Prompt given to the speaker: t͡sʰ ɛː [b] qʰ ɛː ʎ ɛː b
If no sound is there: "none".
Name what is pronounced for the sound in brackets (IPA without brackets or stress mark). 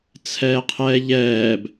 none